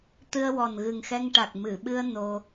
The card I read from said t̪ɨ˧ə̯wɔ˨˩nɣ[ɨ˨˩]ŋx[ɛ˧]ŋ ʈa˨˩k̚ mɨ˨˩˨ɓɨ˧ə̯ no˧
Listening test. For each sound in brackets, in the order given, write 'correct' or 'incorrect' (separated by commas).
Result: correct, correct